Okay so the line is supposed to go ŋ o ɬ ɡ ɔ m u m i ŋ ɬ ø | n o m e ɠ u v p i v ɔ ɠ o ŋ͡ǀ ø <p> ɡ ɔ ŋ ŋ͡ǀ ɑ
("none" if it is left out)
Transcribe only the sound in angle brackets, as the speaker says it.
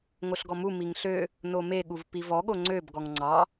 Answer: b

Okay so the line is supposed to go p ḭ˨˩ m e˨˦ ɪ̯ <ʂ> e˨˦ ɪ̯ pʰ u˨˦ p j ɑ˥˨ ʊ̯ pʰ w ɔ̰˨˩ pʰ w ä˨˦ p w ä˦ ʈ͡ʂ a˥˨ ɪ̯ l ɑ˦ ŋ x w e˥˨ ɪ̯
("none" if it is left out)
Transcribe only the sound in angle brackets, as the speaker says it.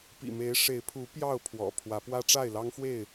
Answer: ʂ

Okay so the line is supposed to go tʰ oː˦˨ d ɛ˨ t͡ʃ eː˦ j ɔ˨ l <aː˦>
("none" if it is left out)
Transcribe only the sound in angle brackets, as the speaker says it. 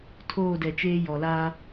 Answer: aː˦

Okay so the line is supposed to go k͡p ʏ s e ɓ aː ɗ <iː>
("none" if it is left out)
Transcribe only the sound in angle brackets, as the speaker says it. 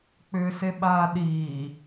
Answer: iː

